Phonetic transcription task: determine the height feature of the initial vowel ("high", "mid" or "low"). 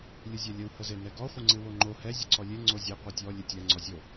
high